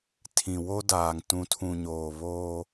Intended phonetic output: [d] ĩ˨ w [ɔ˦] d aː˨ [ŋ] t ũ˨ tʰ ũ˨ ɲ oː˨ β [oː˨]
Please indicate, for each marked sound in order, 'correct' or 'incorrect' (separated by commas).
incorrect, incorrect, correct, incorrect